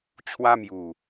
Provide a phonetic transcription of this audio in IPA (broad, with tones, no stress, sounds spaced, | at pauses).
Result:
t͡ɕʰ w a˦ m j u˨˩